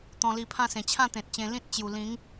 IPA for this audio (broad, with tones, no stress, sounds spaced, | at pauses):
t̪ ɔ̃˧ l i˧ pʰ ã˥˧ s ẽ˨˩ t͡ɕʰ ã˥˧ t̪ ẽ˨ t̚ t͡ɕ ẽ˧ l ĩ˦ t̚ t͡ɕ j u˨˩ l ĩ˨˦ ŋ